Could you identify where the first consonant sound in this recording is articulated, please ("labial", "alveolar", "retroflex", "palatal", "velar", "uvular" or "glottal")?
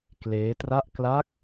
velar